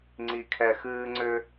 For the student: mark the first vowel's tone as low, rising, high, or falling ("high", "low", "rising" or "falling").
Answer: low